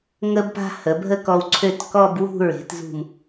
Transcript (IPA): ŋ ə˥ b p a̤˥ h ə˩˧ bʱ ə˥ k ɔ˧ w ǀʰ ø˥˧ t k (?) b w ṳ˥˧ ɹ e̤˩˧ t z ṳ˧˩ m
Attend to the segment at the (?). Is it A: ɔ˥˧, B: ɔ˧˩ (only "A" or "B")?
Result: A